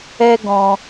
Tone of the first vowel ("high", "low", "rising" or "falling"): high